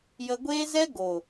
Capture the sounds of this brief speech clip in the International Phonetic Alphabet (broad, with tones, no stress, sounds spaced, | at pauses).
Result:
j ə˧ ɡʷ eː˦ z ɛ˦ ɡ o˨